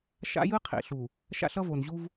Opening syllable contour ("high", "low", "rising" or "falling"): high